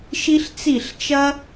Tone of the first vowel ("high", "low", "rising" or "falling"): high